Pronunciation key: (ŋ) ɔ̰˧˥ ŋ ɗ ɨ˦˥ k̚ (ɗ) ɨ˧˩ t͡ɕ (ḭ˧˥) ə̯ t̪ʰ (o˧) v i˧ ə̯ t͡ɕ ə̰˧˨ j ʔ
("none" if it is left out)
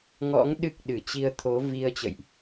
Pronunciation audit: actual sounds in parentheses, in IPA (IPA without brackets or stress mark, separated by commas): ŋ, ɗ, i˧, o˨˦